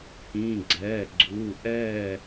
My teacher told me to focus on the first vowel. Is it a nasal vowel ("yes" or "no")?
yes